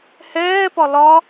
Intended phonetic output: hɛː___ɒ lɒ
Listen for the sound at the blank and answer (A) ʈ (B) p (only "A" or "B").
B